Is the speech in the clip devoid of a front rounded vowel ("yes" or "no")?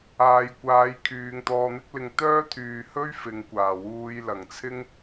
no